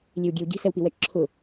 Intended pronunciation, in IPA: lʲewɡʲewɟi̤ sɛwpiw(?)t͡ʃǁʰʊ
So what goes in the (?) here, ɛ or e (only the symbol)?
ɛ